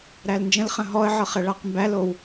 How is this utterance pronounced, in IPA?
ɾ æ l n d͡ʒ ə̃ l χ ə̃ ɦ ɔ ə̯ ʕ ɤ χ ə ɭ a q m b æ l o w

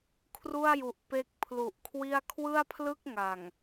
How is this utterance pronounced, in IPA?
kʰ r u˥˩ a̯ j u˨˩ ʔ p e˦˥ k̚ pʰ l u˨˩ ʔ kʰ w i˥˩ a̯ kʰ w ɯ˥˩ a̯ pʰ l ɯ˥˩ k̚ ŋ a˨˩ ŋ

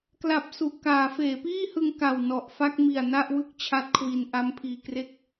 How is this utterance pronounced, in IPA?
k l a˨˩ p̚ s u˨˩ ʔ k aː˩˦ f eː˩˦ p iː˥˩ h ɯ˧ ŋ k a˨˩ w n ɔ˨˩ ʔ f a˥˩ k̚ m i˨˩ a̯ n a˥˩ ʔ w ɯ˥˩ k̚ t͡ɕʰ a˦˥ t̚ kʰ w i˧ n ʔ a˦˥ m pʰ iː˧ k r e˥˩ k̚

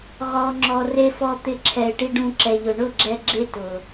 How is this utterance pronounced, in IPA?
ʁ ɔ˨ ŋ͡ǁ ɔ˨ r e˧ f ɔ˧ t̪ ɪ˧ ǁʰ ɛ˨ ɪ̯ ʈ i˧ ɖ ũ˧ ǁ ɛ˨ ʎ ʊ˨ ɳ ʊ˦˨ ɡ͡ǁ ɛ˧ ɡ͡ǁ e˦ t ʊ˨

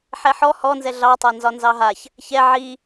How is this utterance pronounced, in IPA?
ħ ɛ ħ ɔ h ɔ n z ɛ ɮ ɑ tˤ a n z ɒ n z ɑ ɦ a ç | ç ɛ ʕ i

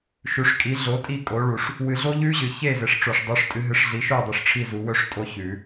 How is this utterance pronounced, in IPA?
ʃ ʉ˨ ʂ kʼ i˩˥ ɮ o˩˥ tʼ i˥˩ kʼ o˩˥ ɭ u˨˩˦ ʂ | w ɨ˨˩˦ ɮ o˦˥ ʎ ʉ˦˥ ʑ ɨ˨ ç e˥˩ z e˩˥ ʂ ʈ͡ʂ o˨ ʂ dˤ u˩˥ ʂ tʼ ɨ˩˥ ɦ ɨ˩˥ ʂ ɮ i˩˥ ʃ o˥˩ dˤ ʉ˨ ʂ ʈ͡ʂʰ i˥˩ z u˨˩˦ w ɵ˦˥ ʂ tʼ o˦˥ ç ʉ˨˩˦

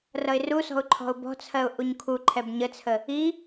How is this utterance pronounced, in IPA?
r ʌ ɪ̯ r u s ɔ̤ ʊ̯ ǃʰ ɔ̤ ʊ̯ b ɔ̤ t͡sʰ ɜ ʊ̯ ʔ u ɲ kʰ u ǃʰ ɛ b ɲ ə t͡sʰ ə | i

